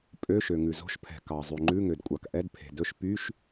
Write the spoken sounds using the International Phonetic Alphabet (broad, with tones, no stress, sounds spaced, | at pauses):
pʼ ø˧˥˧ ʃ ø˩ ŋ ʉ˩ z o̤˧˥˧ ʃ pʰ ɛ̤˩ k ɑ˩ zˤ ʉ˩ ŋ͡ǃ ʉ˧˥˧ ŋ ø˩ d kʷʼ ɑ˩ k ʔ ɛ˧˥˧ d pʰ e̤˩ d ɵ˧˥˧ ʃ p y˧˥˧ ʃ